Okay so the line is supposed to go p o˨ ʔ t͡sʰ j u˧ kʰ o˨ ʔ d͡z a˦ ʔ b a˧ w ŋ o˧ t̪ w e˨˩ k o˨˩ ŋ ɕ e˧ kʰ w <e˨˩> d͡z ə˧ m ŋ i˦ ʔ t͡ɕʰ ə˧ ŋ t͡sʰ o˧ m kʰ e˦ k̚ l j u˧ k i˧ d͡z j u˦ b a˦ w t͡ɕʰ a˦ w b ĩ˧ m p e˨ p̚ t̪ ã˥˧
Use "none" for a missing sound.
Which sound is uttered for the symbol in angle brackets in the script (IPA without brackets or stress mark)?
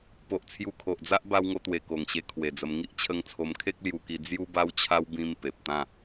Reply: e˨˩